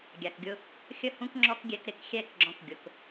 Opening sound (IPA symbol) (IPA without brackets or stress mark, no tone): ɡʲ